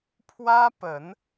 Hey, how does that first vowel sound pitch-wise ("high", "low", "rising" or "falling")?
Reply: high